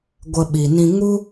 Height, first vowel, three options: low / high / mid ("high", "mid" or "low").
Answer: mid